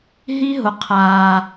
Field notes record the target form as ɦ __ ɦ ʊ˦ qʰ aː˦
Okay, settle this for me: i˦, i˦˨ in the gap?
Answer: i˦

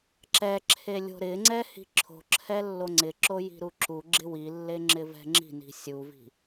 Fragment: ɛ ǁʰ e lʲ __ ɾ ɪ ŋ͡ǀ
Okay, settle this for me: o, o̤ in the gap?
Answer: o̤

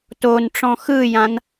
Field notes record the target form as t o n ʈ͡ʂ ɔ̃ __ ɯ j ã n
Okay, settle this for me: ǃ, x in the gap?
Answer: x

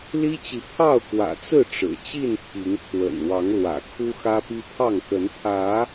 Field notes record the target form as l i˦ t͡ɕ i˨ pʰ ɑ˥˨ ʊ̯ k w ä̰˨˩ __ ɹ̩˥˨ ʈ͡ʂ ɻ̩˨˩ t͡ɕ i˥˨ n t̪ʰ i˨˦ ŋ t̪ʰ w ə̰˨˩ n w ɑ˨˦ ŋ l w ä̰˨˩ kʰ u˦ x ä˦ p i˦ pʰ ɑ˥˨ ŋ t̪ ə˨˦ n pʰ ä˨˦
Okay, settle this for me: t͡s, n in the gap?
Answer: t͡s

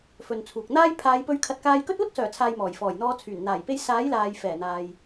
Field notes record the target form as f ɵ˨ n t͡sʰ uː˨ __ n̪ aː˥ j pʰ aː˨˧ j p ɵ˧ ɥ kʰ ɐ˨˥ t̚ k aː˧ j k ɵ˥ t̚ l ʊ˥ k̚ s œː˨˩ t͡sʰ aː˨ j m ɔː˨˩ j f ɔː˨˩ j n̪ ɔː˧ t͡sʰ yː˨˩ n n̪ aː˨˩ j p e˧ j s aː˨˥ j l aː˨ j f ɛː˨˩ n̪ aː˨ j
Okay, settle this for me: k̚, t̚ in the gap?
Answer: k̚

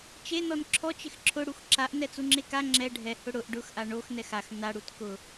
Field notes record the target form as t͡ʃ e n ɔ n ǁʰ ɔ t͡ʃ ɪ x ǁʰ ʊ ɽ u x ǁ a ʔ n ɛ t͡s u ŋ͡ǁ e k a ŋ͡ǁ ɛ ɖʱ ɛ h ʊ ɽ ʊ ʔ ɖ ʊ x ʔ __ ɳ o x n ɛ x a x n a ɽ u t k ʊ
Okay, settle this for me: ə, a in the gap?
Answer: a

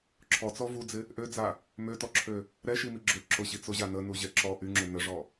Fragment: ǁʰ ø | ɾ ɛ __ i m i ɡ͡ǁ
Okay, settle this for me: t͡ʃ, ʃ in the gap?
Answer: ʃ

